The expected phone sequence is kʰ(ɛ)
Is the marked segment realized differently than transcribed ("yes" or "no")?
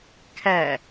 yes